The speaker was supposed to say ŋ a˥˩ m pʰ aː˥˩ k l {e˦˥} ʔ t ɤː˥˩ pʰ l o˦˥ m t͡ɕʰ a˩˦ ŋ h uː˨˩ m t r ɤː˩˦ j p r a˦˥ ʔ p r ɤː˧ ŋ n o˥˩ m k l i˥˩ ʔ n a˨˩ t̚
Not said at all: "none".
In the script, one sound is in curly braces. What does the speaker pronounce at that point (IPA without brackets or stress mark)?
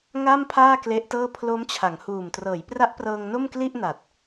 e˦˥